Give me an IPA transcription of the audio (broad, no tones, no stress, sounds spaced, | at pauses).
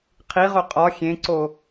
qʰ i ʁ o qʼ ɒ xʲ ẽ ǀ o